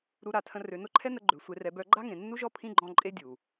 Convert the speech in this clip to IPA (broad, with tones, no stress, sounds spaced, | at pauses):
ɾ u˧ ɾ a˨ tʰ ə̃˧ r ø˨ n ʊ˦ ǃʰ ɛ˦ n ə˧ ɡ͡ǃ ø˨ sʷ e˧ r ɛ˧ b œ˦ ɡ͡ǃ a˦ ŋ ẽ˨ nː u˦ ʒ ɔ˦ pʰ ĩ˦ ɡ͡ǃ ɔ̃˧ ǃʼ e˦ dʲ u˨